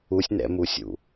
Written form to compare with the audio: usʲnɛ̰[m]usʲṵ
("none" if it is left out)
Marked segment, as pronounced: m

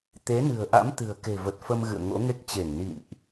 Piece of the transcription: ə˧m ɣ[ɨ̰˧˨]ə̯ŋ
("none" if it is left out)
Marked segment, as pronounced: ɨ̰˧˨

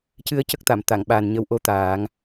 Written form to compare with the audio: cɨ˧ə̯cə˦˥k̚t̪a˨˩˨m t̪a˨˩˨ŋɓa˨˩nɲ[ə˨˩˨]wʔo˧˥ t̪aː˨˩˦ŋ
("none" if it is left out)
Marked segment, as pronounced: ə˧˥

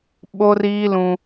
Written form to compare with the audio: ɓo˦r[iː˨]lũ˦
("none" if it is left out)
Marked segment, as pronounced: iː˦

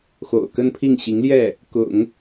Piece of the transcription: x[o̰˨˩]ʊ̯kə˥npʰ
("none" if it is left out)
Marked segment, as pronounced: o̰˨˩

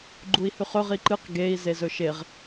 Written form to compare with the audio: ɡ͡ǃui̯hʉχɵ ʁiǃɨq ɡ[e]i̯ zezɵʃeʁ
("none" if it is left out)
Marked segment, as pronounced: e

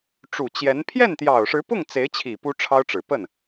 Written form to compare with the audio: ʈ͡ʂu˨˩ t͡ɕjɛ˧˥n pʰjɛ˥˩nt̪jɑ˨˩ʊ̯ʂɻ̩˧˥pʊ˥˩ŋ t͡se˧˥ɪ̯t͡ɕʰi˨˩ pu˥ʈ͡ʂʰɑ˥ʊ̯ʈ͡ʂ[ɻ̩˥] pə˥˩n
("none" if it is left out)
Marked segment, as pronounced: ɻ̩˨˩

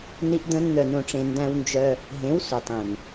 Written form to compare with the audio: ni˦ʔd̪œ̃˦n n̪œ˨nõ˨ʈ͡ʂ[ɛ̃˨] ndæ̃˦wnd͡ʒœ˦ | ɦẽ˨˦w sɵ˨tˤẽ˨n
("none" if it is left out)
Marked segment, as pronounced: ẽ˨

